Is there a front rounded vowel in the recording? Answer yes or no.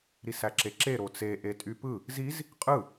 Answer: yes